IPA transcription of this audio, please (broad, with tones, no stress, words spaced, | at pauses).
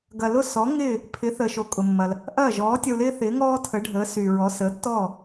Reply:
ɡɐ˩lʊ˥˩sɔ˩˥ ŋɪː˥˩ | pʰɪ˩˥θəː˩ʃo˩ kʼʊ˩mːɐ˩l | ʔɐː˥˩ ʒɔː˩˥tʲɐ˧u̯lɪː˥ θɪː˩˥ŋɔː˥ tʰə˩˥ɖʱəː˩˥syː˩ɹɔ˩˥ səː˩˥tːɔː˥˩